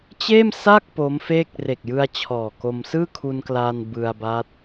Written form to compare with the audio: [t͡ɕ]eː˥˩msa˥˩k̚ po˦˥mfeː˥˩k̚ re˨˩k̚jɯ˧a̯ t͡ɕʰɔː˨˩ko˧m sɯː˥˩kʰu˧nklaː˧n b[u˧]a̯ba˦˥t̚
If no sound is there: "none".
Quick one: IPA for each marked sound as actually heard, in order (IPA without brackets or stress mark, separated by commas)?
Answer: t͡ɕ, ɯ˧